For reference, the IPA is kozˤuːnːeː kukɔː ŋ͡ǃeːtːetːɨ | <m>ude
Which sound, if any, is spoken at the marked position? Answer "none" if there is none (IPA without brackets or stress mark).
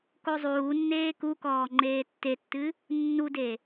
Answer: nː